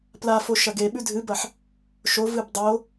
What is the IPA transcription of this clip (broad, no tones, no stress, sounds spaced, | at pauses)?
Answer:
p l a f o ʃ ɐ ɡ e ɓ ʉ dʱ ɨ b ɐ ħ | ʃ o v ɨ b dˤ o